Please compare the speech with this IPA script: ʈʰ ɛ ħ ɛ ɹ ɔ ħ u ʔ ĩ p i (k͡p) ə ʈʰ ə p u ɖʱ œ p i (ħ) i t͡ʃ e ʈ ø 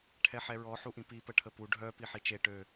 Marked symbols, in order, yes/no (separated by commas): no, yes